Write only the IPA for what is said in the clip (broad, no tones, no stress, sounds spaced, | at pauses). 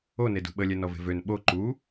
o n e d ṳ ɓ ə lʲ ɛ n ɔ v e̤ v ø n ɓ o ǃ u